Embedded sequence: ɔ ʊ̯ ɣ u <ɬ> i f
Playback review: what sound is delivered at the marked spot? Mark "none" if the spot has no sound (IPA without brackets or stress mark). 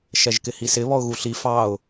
ɬ